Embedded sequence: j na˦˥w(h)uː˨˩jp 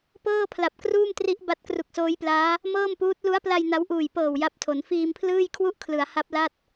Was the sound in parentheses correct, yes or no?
no